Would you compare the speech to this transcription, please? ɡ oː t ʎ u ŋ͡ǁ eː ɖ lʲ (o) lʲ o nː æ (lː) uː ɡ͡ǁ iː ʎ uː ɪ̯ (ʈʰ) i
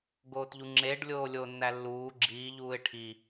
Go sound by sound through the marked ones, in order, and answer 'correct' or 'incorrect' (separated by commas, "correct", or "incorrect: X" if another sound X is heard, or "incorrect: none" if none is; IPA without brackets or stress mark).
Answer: incorrect: oː, correct, correct